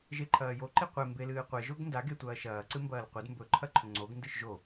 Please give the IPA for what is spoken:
ʒeǃʰɐːjo ǃiqʷe mbelɨːqʷe ʒoɡndaɡe tʷɐːʃɐːǀɨmbɐːl qʷed mbɵ ǃʰɐǃʰɵŋ͡ǀoɡ ndɨʃʒo

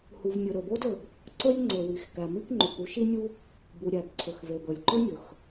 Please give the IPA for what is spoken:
hu˩vmʲɵ˩ ɾɵ˩bo˥dɵ˩b | ǀɵ˥lʲ ŋ͡ǀɵ˩wi˩x kæ˩mi˥kŋ͡ǃu˩k u˥ʃi˥nʲu˥ | bu˩ɾʲæ˩bǀʰɵ˩x ve˩bɵ˩lʲǃɵ˥nʲɵ˩x

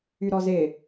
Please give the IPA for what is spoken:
yɾɔzɪ

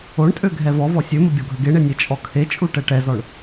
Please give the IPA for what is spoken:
oɳtʼø ɡʱɛvɔvɔ sʲømə bʲɔɡʱəɡeɳe nʲet͡ʃʼɔkʰet͡ʃʼu ʈɛʈɛzɔɳ

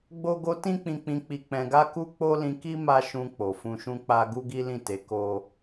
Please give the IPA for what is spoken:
ɡ͡bo˦ɡo˦ tĩ˦k͡pĩ˧k͡pĩ˧ k͡pi˧k͡pɛ̃˧ɡa˦ku˦ k͡po˦lĩ˧ki˦ ma˦ʃũ˧ k͡po˨fũ˧ʃũ˦k͡pa˦ ɡu˦ɡi˦lĩ˦˨ te˨˦ ko˦

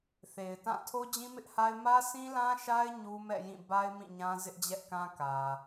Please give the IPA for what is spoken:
θe˨ɪ̯tã˦˨ tʰo˦d͡ʑĩ˦mɪ˦ʔha˦ɪ̯ mä˦sʰĩ˦lã˦ʃa˦ɪ̯ ɲu˦mɛ̰˦˨jĩ˦˨ ba˦ɪ̯ mĩ˦˨ɲã˦ zɪ˦ʔd͡ʑɛ˦ʔkã˦ kä˨

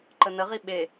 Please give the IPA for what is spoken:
ǃənəʁi ɓe

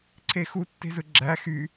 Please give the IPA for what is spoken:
ǀʰexu tːe̤zɯɡ͡ǁæ xy

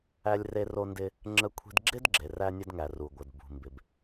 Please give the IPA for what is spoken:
æ˧lʲre˧ro˧ndɪ˧ | ŋ͡ǁə˧kʷʰi̤˧dɡ͡ǁɪ˥d ɡ͡ǁe˩ræ˧nʲə˧dŋæ˩ ru˩ ɡʷə˩d bṳ˩mbɪ˩b

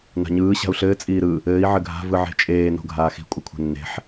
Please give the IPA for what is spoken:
na̤ɲɯː ɕa̤u̯ɬɘː t͡sʼiːɾɯ | ɘːi̯ ʕɘɡʱa̤ vɯʕe̤t͡ʃʼeː no̤ɡʱaːxi̤ kʷʼɘkʷʰe̤nːe̤ħ

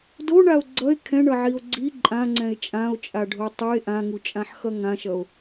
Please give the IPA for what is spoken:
doɳao̯ ɡ͡ǀʌe̯ kʰɛ̃ɳʌʕio̯ ɡ͡ǀi ǃʼãŋ͡ǀɛ̃e̯ t͡ʃʼão̯t͡ʃʼaɖʱo tˤɯe̯ ʔãŋut͡ʃʼãħxʌ ŋãʃʌo̯

